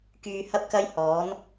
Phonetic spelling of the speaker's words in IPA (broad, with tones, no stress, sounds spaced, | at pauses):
k yː˧ h ɐ˥ p̚ k ɐ˥ j h ɔː˨˥ n